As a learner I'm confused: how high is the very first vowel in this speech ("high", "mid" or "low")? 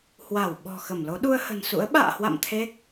low